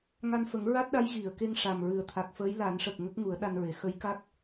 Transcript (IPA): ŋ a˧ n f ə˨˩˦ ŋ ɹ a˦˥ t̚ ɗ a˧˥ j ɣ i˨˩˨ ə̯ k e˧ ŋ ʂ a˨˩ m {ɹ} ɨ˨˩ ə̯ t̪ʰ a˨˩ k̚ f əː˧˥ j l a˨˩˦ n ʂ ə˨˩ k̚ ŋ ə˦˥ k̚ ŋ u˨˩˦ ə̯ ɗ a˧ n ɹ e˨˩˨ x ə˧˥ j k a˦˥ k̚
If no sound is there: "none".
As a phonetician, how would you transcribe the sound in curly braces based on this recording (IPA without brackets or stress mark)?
ɹ